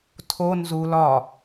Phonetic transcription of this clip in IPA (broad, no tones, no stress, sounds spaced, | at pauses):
tʰ o n z u l ɒ